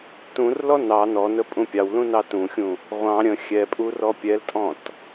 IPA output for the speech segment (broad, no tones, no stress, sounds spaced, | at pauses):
t ũ r l ɔ n ɑ n ɔ n ə pʼ ũ pʲ ɑ w l ũ n ɑ t ũ xʲ ũ | ʁʷ ɑ̃ ɾʲ ə̃ xʲ ɛ pʼ u r ɔ pʲ ɛ l tʼ ɔ̃ t